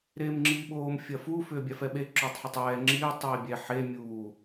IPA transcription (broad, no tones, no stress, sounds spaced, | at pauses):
ɾ eː m ŋ͡ǁ iː ɓ oː m fʲ ɐ f uː f ʏː bʲ a f ɛ ɓ e ǁ ʏː tˤ ħ ʏ tˤ ɛː ŋ͡ǁ iː tˤ iː bʲ ɛ ħ e mʲ uː